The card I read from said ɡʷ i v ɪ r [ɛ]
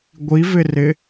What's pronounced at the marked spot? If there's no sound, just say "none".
ɪ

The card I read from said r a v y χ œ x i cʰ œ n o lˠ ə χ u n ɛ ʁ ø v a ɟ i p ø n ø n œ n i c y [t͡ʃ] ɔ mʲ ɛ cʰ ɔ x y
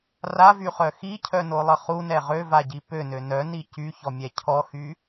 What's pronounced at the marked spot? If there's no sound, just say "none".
ç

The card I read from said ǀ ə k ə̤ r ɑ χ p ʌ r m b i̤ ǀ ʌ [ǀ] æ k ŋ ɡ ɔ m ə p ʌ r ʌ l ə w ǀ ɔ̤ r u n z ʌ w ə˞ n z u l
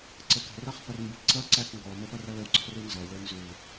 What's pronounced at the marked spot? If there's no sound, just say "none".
ǀ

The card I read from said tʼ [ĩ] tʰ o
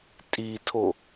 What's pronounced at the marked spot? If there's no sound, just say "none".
i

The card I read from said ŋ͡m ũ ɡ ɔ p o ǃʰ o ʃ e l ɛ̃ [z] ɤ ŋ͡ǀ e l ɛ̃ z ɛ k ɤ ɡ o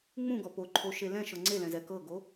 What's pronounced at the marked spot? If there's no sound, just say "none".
ʃ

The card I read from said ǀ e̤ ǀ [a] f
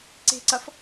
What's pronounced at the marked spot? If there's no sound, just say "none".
ɐ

